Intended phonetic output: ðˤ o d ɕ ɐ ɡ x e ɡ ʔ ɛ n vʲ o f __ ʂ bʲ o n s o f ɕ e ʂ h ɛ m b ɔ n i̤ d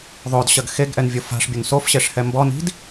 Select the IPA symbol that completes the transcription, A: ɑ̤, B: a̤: B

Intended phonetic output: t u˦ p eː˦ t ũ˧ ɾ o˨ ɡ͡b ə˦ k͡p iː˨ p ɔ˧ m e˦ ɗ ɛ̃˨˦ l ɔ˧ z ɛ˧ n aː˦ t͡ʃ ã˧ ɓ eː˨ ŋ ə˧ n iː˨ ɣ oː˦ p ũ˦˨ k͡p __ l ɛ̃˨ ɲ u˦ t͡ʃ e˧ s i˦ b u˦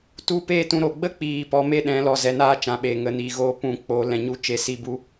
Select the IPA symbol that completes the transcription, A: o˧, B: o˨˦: B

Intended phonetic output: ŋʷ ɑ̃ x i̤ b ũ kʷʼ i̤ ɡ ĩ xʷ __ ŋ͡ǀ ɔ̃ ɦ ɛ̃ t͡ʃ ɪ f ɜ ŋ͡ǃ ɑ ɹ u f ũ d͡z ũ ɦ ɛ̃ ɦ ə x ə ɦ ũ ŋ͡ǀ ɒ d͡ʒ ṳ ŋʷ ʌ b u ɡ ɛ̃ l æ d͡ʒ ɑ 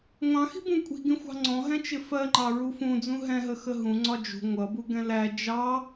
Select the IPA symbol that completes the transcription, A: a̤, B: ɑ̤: B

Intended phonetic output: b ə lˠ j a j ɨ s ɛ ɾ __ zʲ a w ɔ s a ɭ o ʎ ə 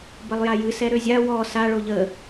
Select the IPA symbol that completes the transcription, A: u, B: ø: B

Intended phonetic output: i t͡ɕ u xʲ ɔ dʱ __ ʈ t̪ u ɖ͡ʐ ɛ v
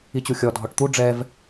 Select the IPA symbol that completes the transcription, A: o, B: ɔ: B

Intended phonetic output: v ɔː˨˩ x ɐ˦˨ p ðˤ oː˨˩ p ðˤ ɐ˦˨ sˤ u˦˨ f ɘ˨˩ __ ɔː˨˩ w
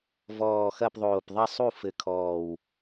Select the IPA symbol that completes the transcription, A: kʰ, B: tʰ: A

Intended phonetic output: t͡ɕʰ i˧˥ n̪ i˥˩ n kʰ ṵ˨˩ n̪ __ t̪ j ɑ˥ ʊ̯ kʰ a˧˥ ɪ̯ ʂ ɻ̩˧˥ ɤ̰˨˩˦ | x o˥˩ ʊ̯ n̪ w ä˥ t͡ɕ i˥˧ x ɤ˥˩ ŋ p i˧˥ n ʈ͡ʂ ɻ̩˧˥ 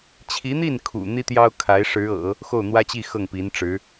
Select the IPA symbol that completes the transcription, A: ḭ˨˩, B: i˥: B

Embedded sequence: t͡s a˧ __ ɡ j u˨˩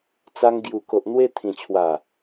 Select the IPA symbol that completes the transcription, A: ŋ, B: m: A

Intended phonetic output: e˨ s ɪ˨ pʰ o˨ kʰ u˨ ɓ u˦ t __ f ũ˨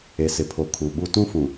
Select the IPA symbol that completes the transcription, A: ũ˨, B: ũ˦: B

